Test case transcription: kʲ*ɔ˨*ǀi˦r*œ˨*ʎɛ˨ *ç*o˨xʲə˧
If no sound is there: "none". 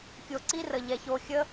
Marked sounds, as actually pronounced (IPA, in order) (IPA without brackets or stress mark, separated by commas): o˨, ə˨, ç